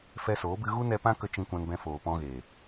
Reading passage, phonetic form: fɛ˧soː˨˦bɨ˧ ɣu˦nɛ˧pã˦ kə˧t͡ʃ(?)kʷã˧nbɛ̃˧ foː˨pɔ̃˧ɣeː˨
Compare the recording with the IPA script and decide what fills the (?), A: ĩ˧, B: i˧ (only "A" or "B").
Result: A